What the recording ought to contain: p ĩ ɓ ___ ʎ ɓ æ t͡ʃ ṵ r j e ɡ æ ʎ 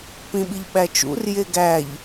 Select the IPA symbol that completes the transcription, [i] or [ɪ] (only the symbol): i